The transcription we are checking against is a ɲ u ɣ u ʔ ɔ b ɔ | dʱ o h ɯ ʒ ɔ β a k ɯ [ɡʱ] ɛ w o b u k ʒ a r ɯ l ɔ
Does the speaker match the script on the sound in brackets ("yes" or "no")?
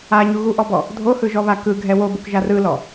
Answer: yes